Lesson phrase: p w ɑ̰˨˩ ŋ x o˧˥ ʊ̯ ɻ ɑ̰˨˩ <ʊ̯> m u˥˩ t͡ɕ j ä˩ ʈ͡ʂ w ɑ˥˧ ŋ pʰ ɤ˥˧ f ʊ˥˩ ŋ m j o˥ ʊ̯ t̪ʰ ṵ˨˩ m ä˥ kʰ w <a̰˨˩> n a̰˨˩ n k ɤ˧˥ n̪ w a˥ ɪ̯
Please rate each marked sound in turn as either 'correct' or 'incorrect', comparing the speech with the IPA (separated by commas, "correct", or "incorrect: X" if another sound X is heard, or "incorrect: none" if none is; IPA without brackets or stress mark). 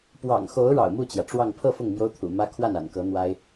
correct, incorrect: a˥˩